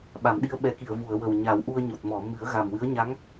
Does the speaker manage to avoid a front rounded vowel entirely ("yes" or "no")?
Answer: yes